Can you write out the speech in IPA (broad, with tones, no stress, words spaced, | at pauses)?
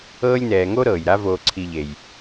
ɤː˦lʲnɛː˨ŋo˥ ɾɤː˩j ɾa˥voː˨ǀʰi˨ ʎe˩j